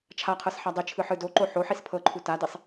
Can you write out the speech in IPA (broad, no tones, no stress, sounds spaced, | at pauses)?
t͡ʃʰ a qʰ ɤ s ħ a dˤ i t͡ʃʰ ɯ ħ ɯ d o ǃ o ħ o ħ i s pʰ ɤ ǃʰ u t a d i sˤ